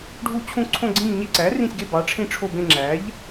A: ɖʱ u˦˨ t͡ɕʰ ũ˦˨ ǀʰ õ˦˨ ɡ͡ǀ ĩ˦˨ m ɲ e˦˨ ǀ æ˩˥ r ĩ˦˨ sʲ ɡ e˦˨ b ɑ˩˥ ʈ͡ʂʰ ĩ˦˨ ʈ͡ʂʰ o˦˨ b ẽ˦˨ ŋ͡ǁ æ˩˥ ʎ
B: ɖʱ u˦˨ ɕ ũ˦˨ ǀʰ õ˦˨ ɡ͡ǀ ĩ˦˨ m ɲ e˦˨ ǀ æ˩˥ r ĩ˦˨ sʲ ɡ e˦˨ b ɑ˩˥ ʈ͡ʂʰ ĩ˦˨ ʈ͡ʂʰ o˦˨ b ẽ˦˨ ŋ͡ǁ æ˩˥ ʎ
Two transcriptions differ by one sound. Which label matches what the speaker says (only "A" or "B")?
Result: A